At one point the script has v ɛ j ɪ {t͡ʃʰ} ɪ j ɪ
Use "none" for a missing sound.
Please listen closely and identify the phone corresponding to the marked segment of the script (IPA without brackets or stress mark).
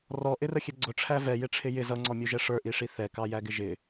ʈ͡ʂʰ